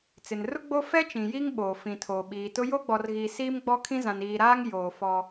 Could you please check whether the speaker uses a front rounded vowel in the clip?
no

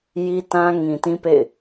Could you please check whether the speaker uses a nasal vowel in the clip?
yes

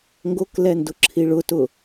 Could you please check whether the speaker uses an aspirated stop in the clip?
yes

